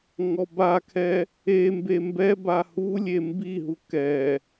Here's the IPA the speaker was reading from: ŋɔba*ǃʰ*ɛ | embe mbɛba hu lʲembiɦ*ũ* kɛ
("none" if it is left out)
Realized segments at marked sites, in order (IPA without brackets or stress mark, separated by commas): kʰ, u